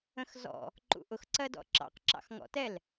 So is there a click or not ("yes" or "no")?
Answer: yes